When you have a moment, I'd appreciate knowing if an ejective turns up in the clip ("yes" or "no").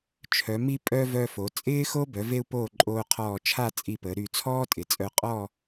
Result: yes